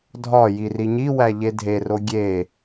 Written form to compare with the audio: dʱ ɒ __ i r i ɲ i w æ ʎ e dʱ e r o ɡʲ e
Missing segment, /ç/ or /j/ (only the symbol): j